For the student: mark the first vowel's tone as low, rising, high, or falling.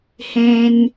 high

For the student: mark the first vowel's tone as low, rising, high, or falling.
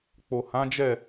low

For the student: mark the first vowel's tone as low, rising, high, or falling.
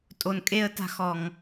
low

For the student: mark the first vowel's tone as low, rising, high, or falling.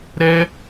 high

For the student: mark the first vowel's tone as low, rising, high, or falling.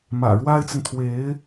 low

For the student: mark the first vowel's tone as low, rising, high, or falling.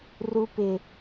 high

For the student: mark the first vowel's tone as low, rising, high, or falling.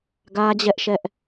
high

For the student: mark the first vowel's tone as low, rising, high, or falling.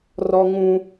high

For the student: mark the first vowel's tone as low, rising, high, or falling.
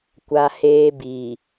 high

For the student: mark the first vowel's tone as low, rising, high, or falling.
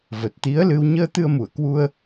low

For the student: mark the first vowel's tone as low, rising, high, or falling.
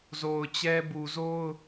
low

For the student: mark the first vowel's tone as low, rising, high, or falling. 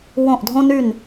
falling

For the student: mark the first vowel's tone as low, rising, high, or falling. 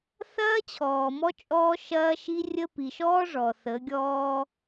high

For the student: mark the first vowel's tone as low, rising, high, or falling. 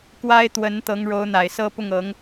high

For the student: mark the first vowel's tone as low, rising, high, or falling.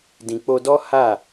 low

